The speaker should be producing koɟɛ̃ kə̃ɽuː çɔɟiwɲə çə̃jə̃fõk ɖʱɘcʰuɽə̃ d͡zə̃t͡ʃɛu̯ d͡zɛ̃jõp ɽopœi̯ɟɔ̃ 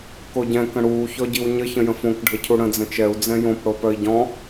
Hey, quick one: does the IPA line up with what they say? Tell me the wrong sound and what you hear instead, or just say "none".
none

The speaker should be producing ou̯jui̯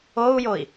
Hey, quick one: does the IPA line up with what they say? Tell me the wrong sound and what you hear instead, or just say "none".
u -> o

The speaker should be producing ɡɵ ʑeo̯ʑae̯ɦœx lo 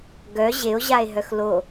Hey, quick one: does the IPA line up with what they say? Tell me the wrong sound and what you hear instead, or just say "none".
ɵ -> œ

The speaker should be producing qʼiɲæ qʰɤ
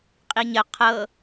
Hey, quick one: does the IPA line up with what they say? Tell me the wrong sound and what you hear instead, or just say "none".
æ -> ə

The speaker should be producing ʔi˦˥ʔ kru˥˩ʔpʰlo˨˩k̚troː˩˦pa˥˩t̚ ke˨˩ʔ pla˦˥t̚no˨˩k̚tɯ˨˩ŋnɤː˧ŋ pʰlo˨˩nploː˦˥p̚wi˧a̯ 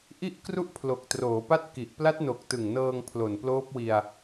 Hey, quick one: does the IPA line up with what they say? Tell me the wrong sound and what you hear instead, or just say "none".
e˨˩ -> i˨˩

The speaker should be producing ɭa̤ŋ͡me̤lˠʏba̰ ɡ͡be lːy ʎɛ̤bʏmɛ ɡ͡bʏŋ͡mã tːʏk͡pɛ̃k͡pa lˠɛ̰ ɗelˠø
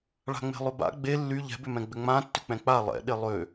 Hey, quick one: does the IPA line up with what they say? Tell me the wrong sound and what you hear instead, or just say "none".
ɛ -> ɛ̃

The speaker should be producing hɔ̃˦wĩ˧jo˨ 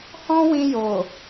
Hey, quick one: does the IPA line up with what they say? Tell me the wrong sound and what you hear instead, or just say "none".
none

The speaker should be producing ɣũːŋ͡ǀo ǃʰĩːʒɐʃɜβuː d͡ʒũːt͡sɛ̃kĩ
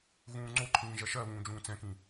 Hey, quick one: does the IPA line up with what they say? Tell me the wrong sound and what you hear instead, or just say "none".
uː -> ũː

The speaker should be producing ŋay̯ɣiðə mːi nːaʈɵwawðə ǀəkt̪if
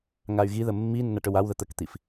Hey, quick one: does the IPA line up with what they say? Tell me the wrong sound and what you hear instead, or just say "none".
ǀ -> t̪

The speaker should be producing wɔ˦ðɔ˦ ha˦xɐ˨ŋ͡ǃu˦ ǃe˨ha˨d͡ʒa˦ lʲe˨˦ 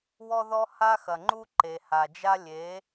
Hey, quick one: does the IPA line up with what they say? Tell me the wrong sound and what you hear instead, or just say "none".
none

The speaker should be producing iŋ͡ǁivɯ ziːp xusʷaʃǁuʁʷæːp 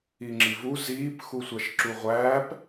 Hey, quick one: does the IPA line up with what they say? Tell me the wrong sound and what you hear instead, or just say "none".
ɯ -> u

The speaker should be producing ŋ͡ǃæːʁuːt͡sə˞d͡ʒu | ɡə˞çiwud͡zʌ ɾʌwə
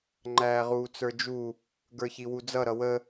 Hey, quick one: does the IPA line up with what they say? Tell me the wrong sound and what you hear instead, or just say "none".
none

